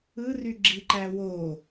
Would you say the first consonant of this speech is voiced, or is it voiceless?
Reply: voiced